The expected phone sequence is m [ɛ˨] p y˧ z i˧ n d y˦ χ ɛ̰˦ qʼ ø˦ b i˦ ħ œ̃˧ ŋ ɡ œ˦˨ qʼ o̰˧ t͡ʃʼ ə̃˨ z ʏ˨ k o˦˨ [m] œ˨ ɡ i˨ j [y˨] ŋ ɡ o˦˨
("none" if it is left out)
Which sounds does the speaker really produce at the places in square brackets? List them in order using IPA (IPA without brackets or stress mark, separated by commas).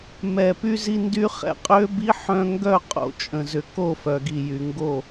ɛ˨, f, y˨